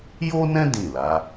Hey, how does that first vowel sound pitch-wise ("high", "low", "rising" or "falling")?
high